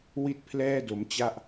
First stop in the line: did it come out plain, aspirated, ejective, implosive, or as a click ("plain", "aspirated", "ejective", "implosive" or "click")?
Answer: plain